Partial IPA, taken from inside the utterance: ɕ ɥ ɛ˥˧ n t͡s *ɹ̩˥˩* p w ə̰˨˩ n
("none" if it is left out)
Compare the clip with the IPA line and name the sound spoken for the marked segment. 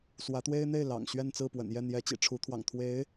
ɹ̩˥˩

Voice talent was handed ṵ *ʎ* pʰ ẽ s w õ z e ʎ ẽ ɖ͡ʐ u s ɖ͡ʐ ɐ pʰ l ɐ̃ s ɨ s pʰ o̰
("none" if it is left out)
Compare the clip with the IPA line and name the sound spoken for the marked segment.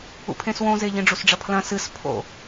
none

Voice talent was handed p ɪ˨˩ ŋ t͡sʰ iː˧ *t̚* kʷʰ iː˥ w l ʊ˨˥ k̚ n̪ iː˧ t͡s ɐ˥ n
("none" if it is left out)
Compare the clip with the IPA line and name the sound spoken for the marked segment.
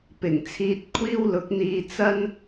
t̚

